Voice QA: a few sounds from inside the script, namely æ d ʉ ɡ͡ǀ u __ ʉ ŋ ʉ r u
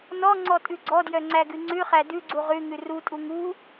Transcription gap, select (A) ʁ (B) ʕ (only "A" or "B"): A